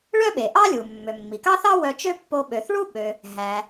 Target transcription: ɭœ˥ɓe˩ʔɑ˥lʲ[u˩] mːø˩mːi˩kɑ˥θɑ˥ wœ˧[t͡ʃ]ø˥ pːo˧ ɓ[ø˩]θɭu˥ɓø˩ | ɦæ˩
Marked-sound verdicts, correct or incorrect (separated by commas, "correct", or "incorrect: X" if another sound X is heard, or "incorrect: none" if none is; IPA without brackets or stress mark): correct, correct, correct